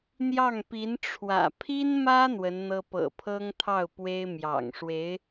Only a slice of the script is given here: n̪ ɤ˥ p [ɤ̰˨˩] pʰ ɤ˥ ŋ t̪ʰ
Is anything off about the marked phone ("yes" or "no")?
no